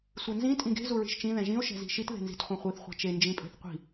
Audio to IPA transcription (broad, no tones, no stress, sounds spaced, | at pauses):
sʷ ɛ n z ĩ tʼ ĩ ɡ e̤ z u ɹ i̤ ʃ t͡ʃ ĩ ð ɛ̃ ʒ ĩ o̯ ʃ ɛ̤ z i̤ ʃ i t ð e̤ n z i̤ t χʷ ẽ χʷ i θ χʷ ɛ̤ t͡ʃ e n d͡ʒ ĩ pʼ e̤ θ qʷ i̤